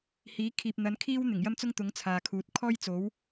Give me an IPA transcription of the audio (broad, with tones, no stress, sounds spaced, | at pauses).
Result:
h iː˨˥ kʰ iː˨ p̚ n̪ ɐ˨˥ n kʰ iː˥ w n̪ ɪ˨˩ ŋ j ɐ˥ m t͡s ʊ˥ ŋ t̪ ʊ˨˥ ŋ t͡sʰ aː˨ kʰ uː˨ t̚ kʰ ɔː˥ j t͡s o˨˥ w